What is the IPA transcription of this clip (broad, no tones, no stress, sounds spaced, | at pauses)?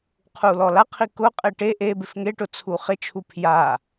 qʰ u l ɔ l a qʰ i k ʊ qʼ e ʈ e ʔ e b ɪ f ŋ e ʈ ʊ t͡sʰ u χ ɪ t͡ʃʰ u pʰ j a